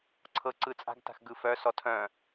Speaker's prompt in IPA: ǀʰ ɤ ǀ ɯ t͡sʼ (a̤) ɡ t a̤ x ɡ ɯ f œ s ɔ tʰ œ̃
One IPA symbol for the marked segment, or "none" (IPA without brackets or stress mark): a̤